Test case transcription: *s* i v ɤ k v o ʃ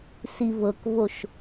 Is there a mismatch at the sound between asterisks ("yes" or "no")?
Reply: no